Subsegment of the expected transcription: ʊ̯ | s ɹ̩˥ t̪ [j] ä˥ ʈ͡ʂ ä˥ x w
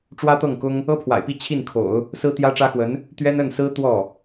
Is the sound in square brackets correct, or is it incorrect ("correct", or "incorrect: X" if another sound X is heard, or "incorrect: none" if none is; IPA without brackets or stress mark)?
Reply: correct